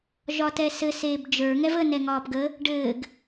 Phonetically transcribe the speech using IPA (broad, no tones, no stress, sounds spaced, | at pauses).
ʒ ɒ t ɛ s ɘ s eː b d͡ʒ ə˞ ŋ ɛ v ə n ɛ ŋ ɒː p ɡ ə | ɖ ɘː ɡ